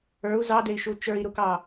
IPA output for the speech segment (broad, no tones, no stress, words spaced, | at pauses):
ə˞u̯ zɑdei̯ʃu t͡ʃə˞i̯ɾukɑ